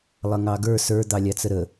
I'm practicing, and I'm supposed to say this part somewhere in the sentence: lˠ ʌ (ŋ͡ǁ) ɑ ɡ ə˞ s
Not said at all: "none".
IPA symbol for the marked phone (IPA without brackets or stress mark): ŋ